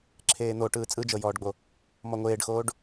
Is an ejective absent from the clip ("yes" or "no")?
no